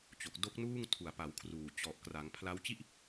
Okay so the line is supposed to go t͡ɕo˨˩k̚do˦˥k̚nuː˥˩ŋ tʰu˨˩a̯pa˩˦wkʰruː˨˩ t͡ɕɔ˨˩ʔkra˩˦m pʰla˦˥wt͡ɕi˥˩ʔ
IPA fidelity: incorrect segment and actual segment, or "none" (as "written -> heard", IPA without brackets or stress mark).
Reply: m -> ŋ